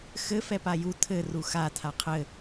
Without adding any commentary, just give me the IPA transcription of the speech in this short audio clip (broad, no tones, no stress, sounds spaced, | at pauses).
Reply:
x ɘ f ɛ p a j u tʰ ɘ r u x a tʰ a qʰ ɘ